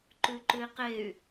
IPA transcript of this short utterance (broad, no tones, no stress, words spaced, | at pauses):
ǃʉǃʉi̯qey̯